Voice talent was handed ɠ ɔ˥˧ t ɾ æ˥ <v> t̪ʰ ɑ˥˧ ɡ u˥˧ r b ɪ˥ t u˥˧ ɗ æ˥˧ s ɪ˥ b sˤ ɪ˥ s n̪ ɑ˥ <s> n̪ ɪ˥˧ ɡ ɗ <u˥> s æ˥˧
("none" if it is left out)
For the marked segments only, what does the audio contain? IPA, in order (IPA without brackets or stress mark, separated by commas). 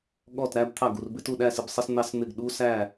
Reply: b, s, u˥